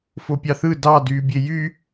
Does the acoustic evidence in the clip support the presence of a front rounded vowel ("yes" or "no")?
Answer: yes